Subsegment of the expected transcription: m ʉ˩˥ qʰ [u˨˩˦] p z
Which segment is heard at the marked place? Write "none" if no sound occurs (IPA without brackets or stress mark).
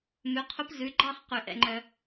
u˧˥